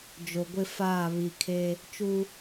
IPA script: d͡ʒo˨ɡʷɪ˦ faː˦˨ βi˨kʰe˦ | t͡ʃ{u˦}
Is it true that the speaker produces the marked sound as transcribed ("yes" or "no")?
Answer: yes